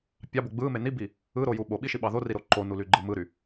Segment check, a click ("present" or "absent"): present